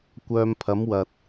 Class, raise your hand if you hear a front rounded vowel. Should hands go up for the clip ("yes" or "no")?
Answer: yes